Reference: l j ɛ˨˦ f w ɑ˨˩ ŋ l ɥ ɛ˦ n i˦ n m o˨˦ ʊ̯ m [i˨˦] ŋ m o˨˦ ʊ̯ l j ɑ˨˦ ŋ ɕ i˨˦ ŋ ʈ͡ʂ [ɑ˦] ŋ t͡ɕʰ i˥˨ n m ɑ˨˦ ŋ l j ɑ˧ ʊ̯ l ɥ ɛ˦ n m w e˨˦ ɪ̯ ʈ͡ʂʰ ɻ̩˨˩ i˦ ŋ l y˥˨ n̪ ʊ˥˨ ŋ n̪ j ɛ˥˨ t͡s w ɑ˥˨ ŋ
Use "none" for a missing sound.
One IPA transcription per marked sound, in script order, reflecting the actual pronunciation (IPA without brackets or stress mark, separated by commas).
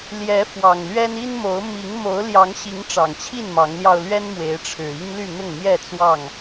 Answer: i˨˦, ɑ˨˩